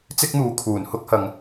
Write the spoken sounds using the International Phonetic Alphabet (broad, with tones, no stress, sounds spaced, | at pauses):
t͡s ɪ˥ k̚ n̪ uː˨ kʰ uː˨˩ n h ʊ˥ k̚ h ɐ˨ ŋ